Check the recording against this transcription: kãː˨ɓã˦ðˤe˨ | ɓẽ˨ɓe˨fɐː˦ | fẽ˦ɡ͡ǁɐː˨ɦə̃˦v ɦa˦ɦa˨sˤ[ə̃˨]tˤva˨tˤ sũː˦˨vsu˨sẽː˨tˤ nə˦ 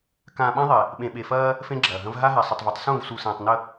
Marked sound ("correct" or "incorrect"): incorrect